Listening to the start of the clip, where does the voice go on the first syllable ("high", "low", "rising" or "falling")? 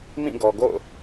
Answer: falling